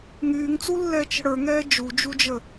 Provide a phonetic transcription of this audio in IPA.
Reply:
ŋ yː ŋ t͡s u lː ɛː t͡ʃ ə̤ ɽ ə˞ ŋ ɛː d͡ʒ u d͡ʒ u d͡ʒ ə

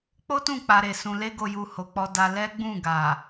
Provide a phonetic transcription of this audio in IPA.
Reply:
k͡p o˦ t ũ˦˨ k͡p a˧ ɾ e˨ s ũ˨ l e˧ ɡ o˨ j u˨ h o˨ k͡p ɔ˧ d a˧ l ɛ˦ ɡ͡b ũ˦˨ ɡ a˨

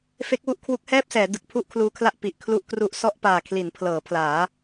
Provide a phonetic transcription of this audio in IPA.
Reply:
f e˦˥ k̚ w u˥˩ ʔ kʰ w u˦˥ k̚ h ɛː˥˩ p̚ s ɛː˩˦ d ɯ˨˩ k̚ pʰ u˥˩ ʔ kʰ l uː˧ kʰ l a˥˩ ʔ p i˨˩ ʔ kʰ l u˦˥ ʔ k r u˦˥ ʔ s ɔ˥˩ ʔ p aː˨˩ kʰ l i˩˦ n pʰ l ɤː˩˦ pʰ l aː˩˦

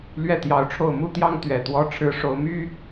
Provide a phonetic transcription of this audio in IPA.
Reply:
l ɥ ɛ˥˩ t̪ j ɑ˧˥ ʊ̯ ʈ͡ʂʰ o˥˩ ʊ̯ m u˥ t̪ j ɑ˥ ŋ t̪ ɥ ɛ˨˩ t̪ w ɔ˥ ʈ͡ʂʰ ɻ̩˥ ʂ o˧˥ ʊ̯ m y˥

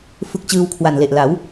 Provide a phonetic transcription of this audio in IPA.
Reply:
f ɯ˦˥ k̚ t͡ɕ ɯː˧ w kʰ w a˨˩ n l e˨˩ ʔ l a˩˦ w

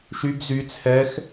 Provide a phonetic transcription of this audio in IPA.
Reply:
ʃ y b z y t͡sʰ ɛ x

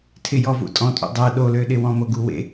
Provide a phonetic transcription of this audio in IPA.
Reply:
tʰ ɪ j ɔ v ṵ tʼ ɔ̃ tʼ ṵ dˤ ɜ ɗ o l ø ɗ ɪ w ɔ̃ m o ɡ u w ḛ

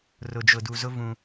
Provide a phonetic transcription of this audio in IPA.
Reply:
r ʊ˨ d͡ʒ ʊ˨ d u˨ z ʊ˦ v ũ˦

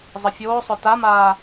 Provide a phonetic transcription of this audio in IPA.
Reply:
zˤ ə fʲ oː sˤ œ t a m aː

